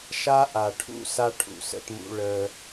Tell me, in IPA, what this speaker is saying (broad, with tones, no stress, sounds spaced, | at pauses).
ʃ a˦ ʔ a˨ ʈʰ ṵ˦ s a˦ ʈʰ ṵ˨ s ə̰˦ t m ṵ˦ ɭ əː˦